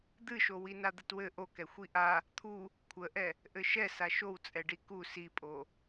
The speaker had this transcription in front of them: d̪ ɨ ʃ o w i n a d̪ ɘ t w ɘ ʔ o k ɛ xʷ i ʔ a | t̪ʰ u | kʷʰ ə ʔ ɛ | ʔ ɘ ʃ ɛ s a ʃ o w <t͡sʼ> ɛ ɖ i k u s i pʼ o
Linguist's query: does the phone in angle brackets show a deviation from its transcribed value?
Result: no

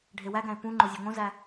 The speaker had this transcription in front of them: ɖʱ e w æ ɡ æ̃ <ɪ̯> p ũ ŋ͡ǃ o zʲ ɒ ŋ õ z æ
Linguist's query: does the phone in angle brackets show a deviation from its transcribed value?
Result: no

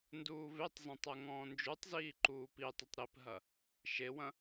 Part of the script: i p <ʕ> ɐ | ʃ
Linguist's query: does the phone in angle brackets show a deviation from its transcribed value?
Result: yes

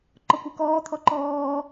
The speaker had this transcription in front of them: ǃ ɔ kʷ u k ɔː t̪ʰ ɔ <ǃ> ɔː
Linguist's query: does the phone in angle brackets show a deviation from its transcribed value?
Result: no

